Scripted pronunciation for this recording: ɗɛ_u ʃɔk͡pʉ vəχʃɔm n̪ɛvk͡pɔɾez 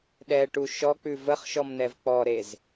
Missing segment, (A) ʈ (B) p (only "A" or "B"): A